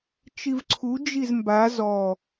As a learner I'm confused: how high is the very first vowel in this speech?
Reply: high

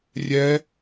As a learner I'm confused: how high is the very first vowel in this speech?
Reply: mid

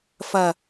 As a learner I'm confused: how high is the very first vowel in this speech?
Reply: low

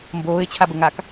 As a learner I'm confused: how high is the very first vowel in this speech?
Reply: mid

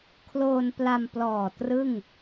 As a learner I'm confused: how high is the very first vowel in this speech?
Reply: mid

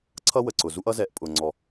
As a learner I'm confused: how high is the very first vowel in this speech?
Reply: mid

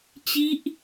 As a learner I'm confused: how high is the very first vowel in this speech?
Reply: high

